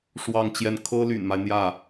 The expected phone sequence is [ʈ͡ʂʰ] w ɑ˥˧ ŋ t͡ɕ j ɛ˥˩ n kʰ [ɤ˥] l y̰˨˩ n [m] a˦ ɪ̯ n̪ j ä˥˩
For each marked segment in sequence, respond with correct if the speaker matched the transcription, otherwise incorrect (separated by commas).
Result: incorrect, correct, correct